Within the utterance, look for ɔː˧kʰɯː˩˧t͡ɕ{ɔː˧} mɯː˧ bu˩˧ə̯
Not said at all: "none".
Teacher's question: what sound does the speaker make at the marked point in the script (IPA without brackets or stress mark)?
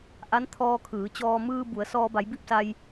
ɔː˧